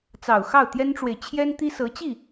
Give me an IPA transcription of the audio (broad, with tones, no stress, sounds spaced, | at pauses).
t͡s ɑ˨˩ ʊ̯ x ɑ˥˩ ʊ̯ t̪ j ɛ˥ n ʈ͡ʂ w e˨ ɪ̯ t͡ɕʰ j ɛ˥ n t̪ i˥ s ɤ˧˥ t͡ɕ i˥˩